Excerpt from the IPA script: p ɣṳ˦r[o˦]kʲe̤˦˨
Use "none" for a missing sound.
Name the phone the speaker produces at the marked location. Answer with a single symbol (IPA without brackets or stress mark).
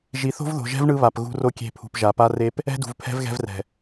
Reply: o˦